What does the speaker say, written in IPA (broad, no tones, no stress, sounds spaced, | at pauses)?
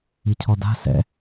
i cʰ ɔ d a̤ s ɛ̰